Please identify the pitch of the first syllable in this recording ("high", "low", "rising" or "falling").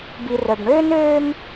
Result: low